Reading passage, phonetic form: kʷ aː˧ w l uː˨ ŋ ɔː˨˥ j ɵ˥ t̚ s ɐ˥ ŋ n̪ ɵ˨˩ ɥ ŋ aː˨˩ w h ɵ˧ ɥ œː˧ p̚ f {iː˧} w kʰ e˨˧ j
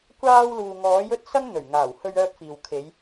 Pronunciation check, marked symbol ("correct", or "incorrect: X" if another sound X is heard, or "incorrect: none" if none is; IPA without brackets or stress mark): incorrect: iː˨